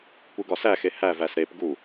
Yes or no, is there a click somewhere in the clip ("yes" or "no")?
no